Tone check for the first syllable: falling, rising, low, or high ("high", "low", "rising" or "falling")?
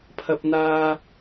low